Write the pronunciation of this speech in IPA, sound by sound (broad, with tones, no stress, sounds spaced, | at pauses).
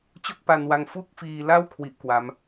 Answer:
t͡ɕ o˥˩ k̚ p a˧ n w a˧ ŋ f u˥˩ k̚ f iː˧ l a˥˩ w kʰ w i˥˩ ʔ k w a˦˥ m